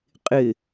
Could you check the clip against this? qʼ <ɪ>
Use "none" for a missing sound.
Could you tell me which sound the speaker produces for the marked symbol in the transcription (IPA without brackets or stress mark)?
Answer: ɪ